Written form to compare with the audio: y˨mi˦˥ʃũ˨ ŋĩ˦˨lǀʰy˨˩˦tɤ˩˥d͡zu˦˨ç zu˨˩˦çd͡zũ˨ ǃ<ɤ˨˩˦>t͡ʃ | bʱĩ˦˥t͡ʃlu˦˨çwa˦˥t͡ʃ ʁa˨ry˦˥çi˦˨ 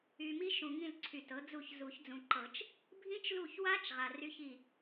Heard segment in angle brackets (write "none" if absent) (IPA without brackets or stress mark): ɤ˨˩˦